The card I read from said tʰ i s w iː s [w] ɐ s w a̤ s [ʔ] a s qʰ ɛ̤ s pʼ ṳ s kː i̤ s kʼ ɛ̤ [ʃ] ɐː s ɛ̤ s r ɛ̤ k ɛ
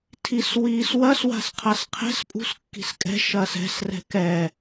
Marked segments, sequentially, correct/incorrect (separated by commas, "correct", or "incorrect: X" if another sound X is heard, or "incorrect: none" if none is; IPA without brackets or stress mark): correct, incorrect: qʰ, correct